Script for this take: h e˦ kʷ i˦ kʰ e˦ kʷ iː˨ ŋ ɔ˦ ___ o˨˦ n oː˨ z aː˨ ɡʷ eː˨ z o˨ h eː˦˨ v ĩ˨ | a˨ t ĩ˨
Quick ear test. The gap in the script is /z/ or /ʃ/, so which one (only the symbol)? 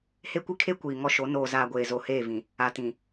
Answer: ʃ